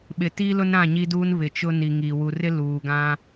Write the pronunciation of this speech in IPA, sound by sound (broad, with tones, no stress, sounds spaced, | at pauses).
ɓ ɪ˨ t iː˦ l ʊ˦ n ɾ ã˦˨ ɲ i˦ d uː˦ n β ɪ˨ t͡ʃ ʊ˦ n i˨ ŋ i˨ w u˨ r ɪ˦ l uː˨ ɡ ã˦